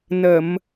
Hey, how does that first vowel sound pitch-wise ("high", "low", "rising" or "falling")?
low